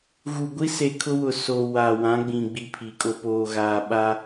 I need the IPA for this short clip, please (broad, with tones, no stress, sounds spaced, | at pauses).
ɣ u˨ ɡʷ i˦ s e˨ kʰ ʊ˦ w ʊ˨ s o˨ w a˨ w ã˨˦ ɡ͡b ĩ˨ ɡ͡b i˦˨ pʰ i˨ kʼ o˨ p oː˨ ɣ aː˨ ɓ a˦